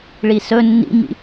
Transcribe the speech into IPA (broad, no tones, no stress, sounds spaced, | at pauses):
ɭ i s ɵ nː ḭ m ḭ